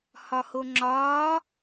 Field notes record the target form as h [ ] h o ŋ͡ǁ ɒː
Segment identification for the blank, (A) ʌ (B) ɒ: B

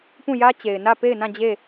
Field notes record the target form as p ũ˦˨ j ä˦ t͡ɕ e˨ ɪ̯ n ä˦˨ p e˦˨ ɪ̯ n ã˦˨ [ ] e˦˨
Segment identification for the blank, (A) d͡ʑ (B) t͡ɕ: A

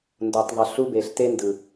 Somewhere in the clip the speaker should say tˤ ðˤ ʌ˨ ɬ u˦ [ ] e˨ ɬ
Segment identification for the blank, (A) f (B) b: B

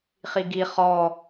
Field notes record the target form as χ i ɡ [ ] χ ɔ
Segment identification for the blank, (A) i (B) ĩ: A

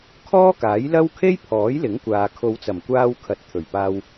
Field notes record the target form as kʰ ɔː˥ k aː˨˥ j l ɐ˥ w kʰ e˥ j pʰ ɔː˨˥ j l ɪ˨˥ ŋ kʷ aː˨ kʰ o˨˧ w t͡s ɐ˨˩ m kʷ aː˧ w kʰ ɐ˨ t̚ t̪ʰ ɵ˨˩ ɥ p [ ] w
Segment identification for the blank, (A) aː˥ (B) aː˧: B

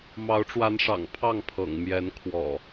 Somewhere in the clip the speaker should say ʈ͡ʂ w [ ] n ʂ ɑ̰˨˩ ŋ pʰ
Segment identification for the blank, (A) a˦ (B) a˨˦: B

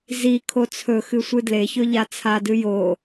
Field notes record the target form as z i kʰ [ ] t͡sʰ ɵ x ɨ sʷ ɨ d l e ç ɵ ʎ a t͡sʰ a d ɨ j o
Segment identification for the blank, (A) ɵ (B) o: B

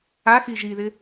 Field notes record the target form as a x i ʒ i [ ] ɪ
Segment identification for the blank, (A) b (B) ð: B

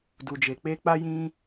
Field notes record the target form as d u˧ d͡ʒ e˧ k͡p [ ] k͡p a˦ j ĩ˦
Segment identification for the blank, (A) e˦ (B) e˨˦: A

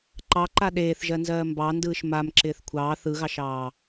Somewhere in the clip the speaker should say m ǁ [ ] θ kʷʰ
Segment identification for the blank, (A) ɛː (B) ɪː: B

